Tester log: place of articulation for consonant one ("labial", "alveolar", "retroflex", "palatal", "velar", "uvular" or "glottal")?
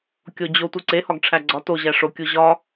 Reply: velar